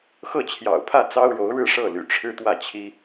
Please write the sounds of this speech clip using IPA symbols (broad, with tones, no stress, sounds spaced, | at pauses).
x ɤ˥˩ t͡ɕʰ j ɑ̰˨˩ ʊ̯ pʰ ä˥˩ t͡s ɑ˥ ʊ̯ ɻ o˧˥ ʊ̯ ɻ ɻ̩˥˧ ʂ ɤ˥˩ l y̰˨˩ ʈ͡ʂʰ ɻ̩˥˧ t̪ w ä˥˩ t͡ɕʰ i˥